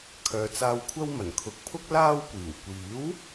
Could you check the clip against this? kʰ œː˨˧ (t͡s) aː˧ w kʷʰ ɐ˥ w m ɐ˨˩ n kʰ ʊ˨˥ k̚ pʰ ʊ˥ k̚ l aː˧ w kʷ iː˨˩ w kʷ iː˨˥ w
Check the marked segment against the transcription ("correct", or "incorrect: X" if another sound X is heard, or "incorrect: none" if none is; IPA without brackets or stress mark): correct